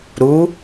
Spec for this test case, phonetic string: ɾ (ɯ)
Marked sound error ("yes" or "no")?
yes